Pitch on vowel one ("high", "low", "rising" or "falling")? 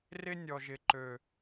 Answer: high